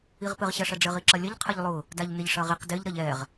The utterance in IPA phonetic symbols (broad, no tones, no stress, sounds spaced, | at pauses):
i ʁ p ɘ ʁ ɕ ɐ ʂ ɐ ɖ͡ʐ ɘ ʁ i ǁ ɐ lʲ ɐ ʎ qʰ ɐ ʎ lˠ ʊ | d a ʎ n ɪ ʎ ʂ ɐ ʁ i q d ɪ ʎ ɾ ɐ ʎ ɛ ʁ